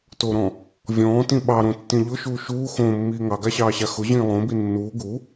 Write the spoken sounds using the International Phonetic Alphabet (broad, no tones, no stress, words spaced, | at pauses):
toɾɔ̃ | vʲɔ̃ːtĩ ɓɑɾõtːĩ ʎʊʃuː ʃuː xõːmːiː ŋɑɡaɕɑːɕa xʊʑĩː lˠõbi nːuː ɡu